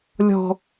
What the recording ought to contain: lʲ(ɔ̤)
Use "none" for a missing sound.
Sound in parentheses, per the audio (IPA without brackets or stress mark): ɔ̤